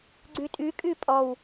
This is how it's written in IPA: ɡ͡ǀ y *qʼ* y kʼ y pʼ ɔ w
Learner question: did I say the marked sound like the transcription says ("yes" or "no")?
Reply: no